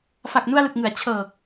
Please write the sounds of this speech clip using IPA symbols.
f a˨˩ k̚ n u˧ a̯ l ɯ˨˩ k̚ ŋ ɯ˩˦ a̯ t͡ɕʰ ɤː˨˩ k̚

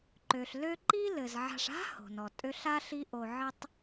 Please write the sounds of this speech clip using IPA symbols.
ǃ ø˩ ɬ l ø˦ ǃ i˥ l ɘ˩ z ʕ a̤˨ ʂ a̤˥ h o̤˩ n ɔ˩ tʼ ø˦ ɬ a˥ ɬ i˦ ʔ o˨ ʕ ɘ˥ tˤ

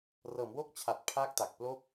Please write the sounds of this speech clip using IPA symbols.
r ɤː˩˦ m w o˦˥ k̚ t͡ɕʰ a˨˩ t̚ pʰ aː˦˥ k̚ t a˨˩ k̚ p l o˥˩ k̚

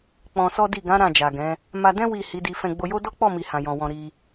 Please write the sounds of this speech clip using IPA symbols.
k͡p ɔ̃˧ s ɔ˦ d i˦˨ ɡ ã˨˦ ɾ ã˦˨ d͡ʒ a˨ ɡ ɛ̃˨˦ | m a˧ d ɛ̃˦ w i˦˨ h i˨˦ d i˧ f ɛ̃˧ ɡ͡b o˧ j o˦ d ɔ˦ k͡p ɔ˦˨ m i˨ h ã˨ j ɔ̃˨ w ɔ̃˨ ɾ i˧

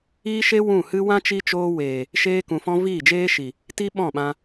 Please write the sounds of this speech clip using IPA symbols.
iː˦ ʃ e˦ w ũ˦˨ h ɨ˦ w ã˦ t͡ʃ i˦ t͡ʃ oː˦ w eː˨ | ʃ eː˧ k ũ˨ f ɔ̃˧ v iː˦˨ d͡ʒ eː˦ ʃ i˨ | t i˦ ɓ ɔ̃˦˨ ɓ ã˧

